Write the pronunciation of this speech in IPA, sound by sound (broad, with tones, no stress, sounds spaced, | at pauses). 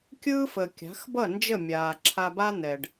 kʲ ɯː˦ f ə˨ kʲ a̤˨˦ x b ʌ˦˨ n d͡ʒ ə˦˨ mʲ aː˨ ǁʰ a˧ b a˦ n̪ ɛ˨ ɖ